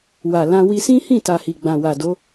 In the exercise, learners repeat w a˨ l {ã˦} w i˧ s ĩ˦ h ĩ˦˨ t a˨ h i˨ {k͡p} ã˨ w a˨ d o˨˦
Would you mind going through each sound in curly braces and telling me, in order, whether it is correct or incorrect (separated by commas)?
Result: incorrect, incorrect